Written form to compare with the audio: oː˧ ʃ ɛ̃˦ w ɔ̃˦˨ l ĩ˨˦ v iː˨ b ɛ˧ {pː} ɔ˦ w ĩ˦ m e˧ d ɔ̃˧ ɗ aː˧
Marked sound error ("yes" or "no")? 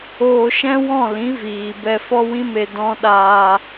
yes